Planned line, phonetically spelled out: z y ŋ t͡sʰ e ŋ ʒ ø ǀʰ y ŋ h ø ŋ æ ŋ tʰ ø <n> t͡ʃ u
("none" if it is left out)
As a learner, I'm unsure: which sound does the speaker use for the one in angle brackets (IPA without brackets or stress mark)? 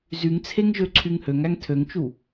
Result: ŋ